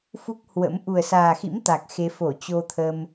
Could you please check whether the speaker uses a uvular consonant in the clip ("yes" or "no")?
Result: no